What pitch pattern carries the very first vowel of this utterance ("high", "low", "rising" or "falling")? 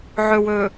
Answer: low